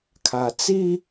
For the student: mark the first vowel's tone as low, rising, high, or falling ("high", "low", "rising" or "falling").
low